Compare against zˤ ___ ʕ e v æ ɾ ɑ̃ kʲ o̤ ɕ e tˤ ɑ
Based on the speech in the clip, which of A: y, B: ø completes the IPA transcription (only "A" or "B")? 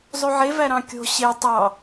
A